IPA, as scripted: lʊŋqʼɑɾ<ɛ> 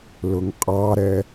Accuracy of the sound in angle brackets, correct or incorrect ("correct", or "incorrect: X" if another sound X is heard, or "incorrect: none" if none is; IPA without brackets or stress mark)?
correct